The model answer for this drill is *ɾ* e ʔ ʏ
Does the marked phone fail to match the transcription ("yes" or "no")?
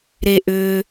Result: no